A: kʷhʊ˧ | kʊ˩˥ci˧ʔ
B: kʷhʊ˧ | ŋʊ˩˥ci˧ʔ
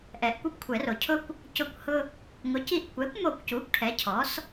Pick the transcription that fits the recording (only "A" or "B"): B